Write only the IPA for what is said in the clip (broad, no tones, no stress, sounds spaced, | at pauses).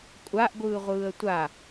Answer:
kʷʼ a ʔ ɡʷ ɯː ʁʷ ɯː ə̯ tʷ a